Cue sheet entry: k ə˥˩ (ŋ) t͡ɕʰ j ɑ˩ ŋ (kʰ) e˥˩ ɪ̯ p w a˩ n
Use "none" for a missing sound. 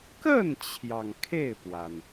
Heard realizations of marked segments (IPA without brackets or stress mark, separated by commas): n, kʰ